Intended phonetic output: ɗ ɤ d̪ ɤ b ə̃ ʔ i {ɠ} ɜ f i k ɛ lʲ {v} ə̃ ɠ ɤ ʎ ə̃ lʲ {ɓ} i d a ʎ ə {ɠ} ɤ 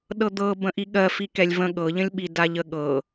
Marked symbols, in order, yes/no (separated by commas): yes, yes, yes, yes